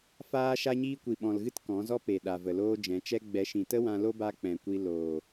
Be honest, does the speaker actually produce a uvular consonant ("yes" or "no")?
no